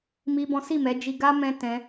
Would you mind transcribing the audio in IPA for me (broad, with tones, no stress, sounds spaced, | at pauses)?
m i˦ b ɔ̃˦ s i˦˨ m ɛ˨˦ d͡ʒ i˧ ɡ a˦ m ɛ̃˦ t ɛ̃˦